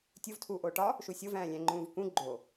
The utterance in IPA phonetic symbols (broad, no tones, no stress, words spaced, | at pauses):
tʲuv tʰuːʔoːʈɒ | ʃusʲov æ̃ːlʲæ̃ŋ͡ǃũːvkũ ɡ͡ǃo